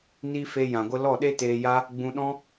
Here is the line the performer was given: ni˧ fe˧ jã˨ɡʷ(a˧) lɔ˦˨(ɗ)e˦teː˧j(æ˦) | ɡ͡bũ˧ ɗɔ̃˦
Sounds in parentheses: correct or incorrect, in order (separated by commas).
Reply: incorrect, correct, incorrect